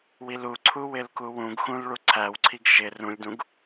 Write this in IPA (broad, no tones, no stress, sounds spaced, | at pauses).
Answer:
w i l u ǀʰ u w ɪ l k u w ũ ɡ x ũ l ɭ u ǀʰ æ w ǀʰ i ɡ ʃ ɪ r ũ lʲ d ũ ɡ